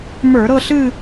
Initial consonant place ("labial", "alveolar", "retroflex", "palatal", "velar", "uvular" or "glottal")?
labial